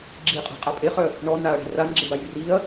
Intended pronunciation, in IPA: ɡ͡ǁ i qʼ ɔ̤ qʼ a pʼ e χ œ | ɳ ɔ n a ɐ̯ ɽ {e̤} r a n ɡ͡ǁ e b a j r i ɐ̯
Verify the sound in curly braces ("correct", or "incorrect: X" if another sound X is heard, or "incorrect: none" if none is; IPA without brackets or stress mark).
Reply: correct